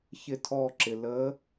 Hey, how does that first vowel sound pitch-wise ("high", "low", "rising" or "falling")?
falling